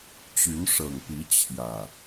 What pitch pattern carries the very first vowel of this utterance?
rising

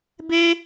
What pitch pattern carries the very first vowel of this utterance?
high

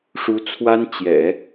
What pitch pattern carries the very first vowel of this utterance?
rising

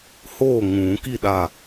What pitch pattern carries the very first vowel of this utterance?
falling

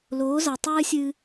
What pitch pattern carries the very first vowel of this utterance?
rising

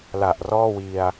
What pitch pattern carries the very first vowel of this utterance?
low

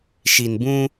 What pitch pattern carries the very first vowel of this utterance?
low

